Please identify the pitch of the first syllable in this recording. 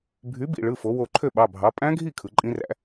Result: rising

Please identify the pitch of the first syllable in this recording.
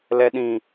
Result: low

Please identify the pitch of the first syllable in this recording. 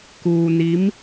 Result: low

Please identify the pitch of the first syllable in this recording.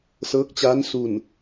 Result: rising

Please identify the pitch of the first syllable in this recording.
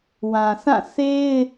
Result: low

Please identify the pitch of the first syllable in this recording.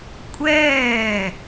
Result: falling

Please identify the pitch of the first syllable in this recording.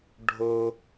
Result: high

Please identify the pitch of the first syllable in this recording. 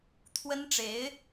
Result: high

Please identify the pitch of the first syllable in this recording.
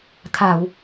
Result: low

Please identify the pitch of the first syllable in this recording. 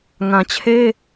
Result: low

